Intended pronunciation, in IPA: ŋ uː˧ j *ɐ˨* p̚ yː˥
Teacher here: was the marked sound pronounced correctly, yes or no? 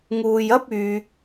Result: no